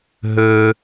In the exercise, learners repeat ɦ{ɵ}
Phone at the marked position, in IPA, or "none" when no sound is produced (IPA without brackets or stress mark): ɵ